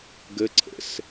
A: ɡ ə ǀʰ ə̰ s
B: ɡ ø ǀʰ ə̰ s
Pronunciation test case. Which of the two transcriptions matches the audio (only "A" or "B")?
A